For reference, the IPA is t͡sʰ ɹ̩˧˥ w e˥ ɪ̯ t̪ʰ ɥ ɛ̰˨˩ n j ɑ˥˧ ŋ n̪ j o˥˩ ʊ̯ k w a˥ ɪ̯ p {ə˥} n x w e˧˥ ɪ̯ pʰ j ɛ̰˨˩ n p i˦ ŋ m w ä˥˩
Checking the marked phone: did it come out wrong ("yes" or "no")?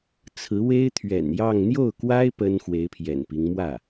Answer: no